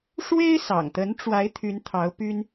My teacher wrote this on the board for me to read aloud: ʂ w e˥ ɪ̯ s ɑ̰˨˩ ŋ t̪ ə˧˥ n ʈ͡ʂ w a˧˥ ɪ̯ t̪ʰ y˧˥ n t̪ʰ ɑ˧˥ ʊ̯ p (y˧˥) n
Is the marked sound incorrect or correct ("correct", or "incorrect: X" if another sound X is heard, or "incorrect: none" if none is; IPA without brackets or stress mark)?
incorrect: y˥